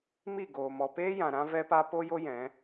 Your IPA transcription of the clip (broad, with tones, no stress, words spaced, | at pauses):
mi˦˨ɡoː˨ mɔ˨peː˦jã˨ ɾã˦vɛ˦pa˦ po˦jo˦ jɛ̃˨˦